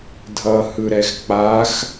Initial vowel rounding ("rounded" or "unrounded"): unrounded